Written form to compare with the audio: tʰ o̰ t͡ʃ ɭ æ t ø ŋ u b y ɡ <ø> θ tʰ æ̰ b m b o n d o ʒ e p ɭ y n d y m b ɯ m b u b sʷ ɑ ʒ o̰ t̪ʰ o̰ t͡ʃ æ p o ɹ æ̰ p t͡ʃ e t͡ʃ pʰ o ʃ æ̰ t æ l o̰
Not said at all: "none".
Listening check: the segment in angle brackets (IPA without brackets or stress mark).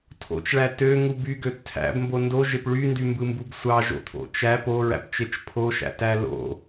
ø